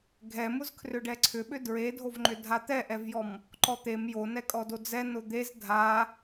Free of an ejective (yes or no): no